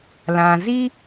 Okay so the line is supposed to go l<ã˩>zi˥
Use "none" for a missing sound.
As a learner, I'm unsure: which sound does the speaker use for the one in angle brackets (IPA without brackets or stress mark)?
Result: ã˩